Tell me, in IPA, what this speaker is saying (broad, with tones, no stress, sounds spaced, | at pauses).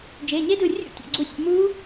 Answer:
d͡ʒ e˩˧˩ ɲ e˦˥ d ɯ˧˩ rʲ ṵ˦˥ tʲ ɔ̰˩˧˩ ɡ͡ǀ u˧˩ sʲ ṵ˧˩ m u˦˥